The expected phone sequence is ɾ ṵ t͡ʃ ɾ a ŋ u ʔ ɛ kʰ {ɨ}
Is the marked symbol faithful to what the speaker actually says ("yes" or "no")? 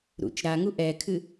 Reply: yes